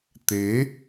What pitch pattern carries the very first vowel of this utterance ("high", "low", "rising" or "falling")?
rising